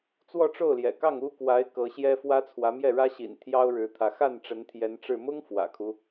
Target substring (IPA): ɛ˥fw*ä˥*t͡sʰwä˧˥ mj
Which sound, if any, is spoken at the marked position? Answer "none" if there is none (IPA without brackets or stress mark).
ä˥